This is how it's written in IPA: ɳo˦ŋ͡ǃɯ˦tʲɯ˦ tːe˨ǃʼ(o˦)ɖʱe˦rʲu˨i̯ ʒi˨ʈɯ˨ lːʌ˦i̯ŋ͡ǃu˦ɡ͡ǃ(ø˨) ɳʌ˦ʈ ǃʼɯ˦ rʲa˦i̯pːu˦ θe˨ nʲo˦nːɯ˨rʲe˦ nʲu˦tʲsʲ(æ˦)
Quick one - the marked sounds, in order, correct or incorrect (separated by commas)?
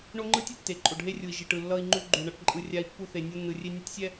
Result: incorrect, incorrect, incorrect